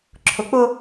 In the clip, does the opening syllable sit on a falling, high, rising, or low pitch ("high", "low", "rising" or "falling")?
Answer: low